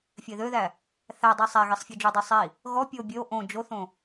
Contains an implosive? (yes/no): no